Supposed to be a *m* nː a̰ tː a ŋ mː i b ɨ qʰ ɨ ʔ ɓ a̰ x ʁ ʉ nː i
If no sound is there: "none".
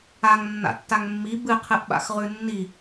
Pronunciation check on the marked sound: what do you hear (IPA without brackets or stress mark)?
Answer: ŋ